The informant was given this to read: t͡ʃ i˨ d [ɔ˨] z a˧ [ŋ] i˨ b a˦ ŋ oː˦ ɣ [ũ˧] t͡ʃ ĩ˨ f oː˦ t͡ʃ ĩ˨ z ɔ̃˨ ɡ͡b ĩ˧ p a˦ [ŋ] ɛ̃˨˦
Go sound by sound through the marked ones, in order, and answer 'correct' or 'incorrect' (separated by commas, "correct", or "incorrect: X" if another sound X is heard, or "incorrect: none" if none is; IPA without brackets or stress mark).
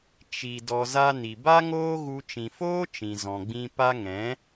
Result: correct, incorrect: n, incorrect: u˧, correct